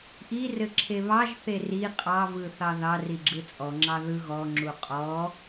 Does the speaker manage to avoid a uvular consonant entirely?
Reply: no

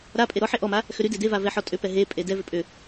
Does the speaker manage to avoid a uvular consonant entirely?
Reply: yes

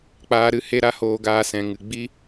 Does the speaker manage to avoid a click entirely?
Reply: yes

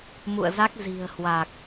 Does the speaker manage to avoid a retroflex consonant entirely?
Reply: yes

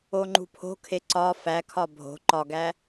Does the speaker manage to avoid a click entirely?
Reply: no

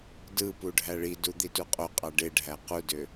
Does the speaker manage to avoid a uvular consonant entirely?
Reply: no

